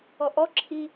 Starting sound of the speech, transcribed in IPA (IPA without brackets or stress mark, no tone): ɔ